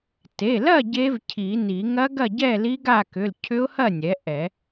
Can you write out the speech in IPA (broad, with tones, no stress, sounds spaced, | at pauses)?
t e˩˧˩ l ɐ˥˨ ɟ e˦˥ v cʰ i˨˩˦ n i˨˩˦ ŋ ɐ˦˥ ɡ ɐ˥˨ ɟ ɛ˥˨ l i˦˥ ɡ a˥˨ k ʏ˩˧˩ l cʰ ʏ˦˥ ʊ̯ h ɐ˥˨ nʲ ɛ˩˥ ʔ ɛ˨˩˦